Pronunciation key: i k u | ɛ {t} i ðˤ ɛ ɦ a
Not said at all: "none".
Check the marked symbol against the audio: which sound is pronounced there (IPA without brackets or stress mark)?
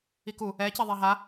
c